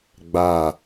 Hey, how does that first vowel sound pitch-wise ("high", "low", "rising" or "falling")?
falling